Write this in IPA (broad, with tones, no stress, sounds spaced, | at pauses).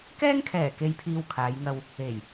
k ɛː˥ ŋ kʰ ɛː˨˩ k e˨ j pʰ iː˨ w kʰ aː˨˧ j ŋ ɐ˧ w | e˨˩ j